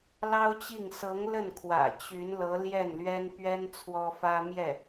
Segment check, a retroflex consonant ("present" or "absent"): absent